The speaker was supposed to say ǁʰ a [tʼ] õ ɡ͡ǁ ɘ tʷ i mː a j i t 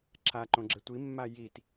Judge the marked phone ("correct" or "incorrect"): incorrect